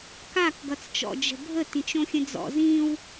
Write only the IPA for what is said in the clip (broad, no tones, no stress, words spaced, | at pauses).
kak ɡʌt͡st͡ʃɔ̰ d͡ʒə̤bʱə tĩt͡ʃõxʲə̃d͡zɔ̰ zĩw